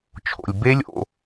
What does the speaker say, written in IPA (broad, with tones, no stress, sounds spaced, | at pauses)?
t͡ʃʰ o̰˩ lʲ b e˦˥ lʲ o̰˩˧˩